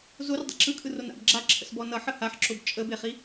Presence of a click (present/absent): present